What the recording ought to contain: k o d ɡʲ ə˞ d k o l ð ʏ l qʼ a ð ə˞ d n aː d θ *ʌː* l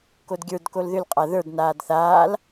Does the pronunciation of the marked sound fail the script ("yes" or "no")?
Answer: yes